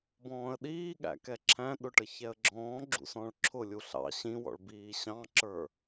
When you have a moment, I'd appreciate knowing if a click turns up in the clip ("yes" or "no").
yes